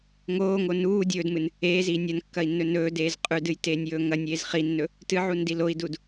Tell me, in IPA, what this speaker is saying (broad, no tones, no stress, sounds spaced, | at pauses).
ŋ oː ŋ o n uː dʲ ɵː d m ɨ n | eː z iː nʲ ɐ n kː ɐ i̯ nː ɵ n ɵː d eː z qʼ ʉ d ɨ j t eː nʲ j ɵː ŋ ɐ nʲ eː z χ i nː ɵ | t ɨ ʕ u n d i l o i̯ d u d